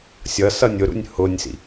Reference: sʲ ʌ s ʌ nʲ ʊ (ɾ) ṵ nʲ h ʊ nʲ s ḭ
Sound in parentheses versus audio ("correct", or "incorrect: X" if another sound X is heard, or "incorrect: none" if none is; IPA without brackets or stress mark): correct